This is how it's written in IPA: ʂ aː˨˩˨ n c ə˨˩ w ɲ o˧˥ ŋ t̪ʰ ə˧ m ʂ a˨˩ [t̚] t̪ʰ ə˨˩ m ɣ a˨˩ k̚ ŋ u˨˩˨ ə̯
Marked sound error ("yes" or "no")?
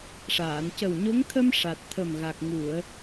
no